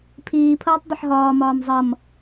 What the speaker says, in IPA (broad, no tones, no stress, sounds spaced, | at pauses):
pʰ iː pʰ ʌː tˤ dˤ ə ħ ɦ ɒː m ɒː m zˤ ʌ m